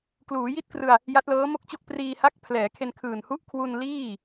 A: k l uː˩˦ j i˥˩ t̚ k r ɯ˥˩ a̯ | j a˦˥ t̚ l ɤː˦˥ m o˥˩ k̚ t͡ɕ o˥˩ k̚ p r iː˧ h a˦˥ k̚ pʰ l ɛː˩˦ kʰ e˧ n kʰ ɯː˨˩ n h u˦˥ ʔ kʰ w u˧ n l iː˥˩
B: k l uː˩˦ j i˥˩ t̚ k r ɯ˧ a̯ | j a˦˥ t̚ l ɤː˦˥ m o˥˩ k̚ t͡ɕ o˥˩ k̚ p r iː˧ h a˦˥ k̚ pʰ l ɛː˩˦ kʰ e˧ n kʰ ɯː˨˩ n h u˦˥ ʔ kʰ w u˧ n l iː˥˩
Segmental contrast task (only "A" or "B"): B